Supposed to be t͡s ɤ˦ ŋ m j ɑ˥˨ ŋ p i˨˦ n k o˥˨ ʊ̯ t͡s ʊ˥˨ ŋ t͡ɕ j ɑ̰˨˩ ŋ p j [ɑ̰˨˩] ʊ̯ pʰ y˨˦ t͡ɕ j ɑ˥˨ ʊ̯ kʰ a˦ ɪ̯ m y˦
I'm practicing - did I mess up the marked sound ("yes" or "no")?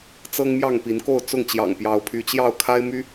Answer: yes